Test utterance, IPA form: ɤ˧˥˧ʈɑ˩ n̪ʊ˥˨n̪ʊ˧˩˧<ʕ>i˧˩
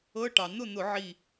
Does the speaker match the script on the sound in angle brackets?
yes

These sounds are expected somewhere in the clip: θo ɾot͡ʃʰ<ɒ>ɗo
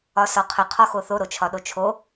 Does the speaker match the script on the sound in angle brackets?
yes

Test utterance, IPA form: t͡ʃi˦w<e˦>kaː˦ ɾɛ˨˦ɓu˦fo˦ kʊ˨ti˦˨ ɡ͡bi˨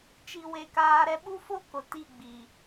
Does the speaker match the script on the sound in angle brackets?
yes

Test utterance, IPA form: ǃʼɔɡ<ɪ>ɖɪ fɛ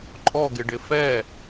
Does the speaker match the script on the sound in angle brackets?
yes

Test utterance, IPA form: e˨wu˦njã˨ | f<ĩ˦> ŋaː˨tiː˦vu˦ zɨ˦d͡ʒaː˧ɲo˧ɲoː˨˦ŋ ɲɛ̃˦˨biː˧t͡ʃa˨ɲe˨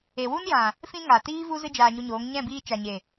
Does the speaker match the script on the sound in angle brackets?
no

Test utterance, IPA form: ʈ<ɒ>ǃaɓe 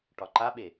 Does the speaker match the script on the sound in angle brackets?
yes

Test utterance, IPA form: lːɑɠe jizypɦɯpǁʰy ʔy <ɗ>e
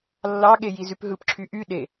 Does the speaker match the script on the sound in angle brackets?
yes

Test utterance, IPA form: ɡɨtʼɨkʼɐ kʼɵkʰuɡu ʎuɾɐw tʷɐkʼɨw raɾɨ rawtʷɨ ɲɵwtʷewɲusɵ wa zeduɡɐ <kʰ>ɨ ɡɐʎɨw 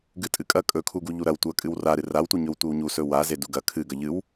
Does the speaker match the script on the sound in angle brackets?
yes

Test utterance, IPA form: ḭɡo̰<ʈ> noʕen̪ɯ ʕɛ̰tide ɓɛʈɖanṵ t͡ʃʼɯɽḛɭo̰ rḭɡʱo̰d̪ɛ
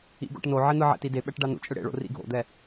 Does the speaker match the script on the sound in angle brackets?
yes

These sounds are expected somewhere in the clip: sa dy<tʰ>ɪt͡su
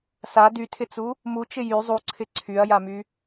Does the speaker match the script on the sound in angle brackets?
yes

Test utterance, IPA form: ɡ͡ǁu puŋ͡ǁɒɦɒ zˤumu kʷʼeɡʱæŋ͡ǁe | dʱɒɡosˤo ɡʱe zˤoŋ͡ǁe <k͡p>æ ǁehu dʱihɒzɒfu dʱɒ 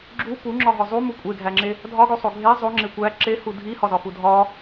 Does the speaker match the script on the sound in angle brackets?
no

